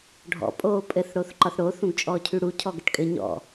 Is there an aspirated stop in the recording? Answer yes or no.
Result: yes